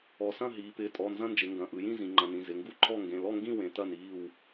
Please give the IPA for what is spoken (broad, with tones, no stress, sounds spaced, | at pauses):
ɔ˩˧ s ɐ̃˥˨ ɦ iː˩˧ p ɪː˩˧˩ tʼ ɔ˩˧˩ n z ɐ̃˥˨ n d͡ʒ ɪ˩˧ ŋ ɡ ɐ̃˩˧˩ ʔ ɯ˩˧ j ĩ˥˨ z ĩ˩˧ ŋ͡ǃ ɐ̃˩˧˩ n ĩ˩˧˩ z ɪ˩˧˩ ŋ ɡ u˥˨ ǃʰ ɔ˥˨ ŋ ɡ ẽ˩˧˩ l ɔ˥˨ ŋ ɡ ĩ˥˨ w ẽ˩˧ t ɐ˥˨ n iː˥˨ w